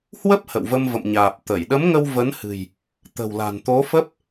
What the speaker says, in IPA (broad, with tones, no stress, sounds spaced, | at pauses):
h w ə˦˥ p̚ h ə̰˧˨ w v ə˧ m v ə̰˧˨ m ɲ aː˨˩ p̚ t̪ ə˧˩ j ɗ ə˨˦ m ŋ ə˧ w v ə˨˦ n h ɨ̤˨˩ j | t̪ ə̤˨˩ w l a̤˨˩ n t̪ o˨˦ f ə˦˥ p̚